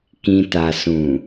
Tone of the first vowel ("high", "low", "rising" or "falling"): low